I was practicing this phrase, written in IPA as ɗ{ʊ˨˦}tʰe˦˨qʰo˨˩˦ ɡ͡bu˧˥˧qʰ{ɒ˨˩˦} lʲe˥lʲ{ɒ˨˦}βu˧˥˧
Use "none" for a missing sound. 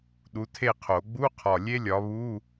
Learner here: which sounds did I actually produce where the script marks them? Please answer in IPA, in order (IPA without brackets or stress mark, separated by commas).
u˨˦, ɒ˨˩, ɒ˨˦